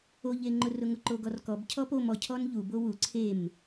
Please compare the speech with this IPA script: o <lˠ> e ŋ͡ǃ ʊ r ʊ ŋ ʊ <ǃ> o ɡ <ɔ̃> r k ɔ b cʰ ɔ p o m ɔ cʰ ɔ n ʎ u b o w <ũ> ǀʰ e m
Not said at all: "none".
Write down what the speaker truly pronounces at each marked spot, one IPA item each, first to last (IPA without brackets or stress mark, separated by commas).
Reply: ʎ, ǃ, ɔ, u